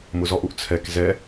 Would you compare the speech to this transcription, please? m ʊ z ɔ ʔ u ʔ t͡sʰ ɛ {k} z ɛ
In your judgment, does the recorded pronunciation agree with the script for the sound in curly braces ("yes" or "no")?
yes